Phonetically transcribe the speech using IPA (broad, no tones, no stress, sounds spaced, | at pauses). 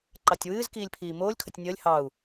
ǃ ɑ tʲ w ɨː z k iː lʲ pʰ iː m oː lʲ kʰ ə tʲ nʲ əː lʲ h ɑ u̯